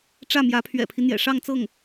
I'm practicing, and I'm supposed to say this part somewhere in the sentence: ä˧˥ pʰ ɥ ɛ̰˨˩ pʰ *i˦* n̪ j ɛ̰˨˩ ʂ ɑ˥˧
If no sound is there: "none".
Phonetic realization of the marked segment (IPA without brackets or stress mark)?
i˦